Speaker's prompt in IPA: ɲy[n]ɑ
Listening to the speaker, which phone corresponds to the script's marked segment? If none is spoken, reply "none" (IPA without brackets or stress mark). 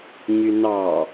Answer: n